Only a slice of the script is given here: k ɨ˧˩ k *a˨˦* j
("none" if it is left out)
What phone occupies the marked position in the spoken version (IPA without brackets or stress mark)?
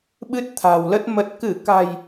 a̤˨˩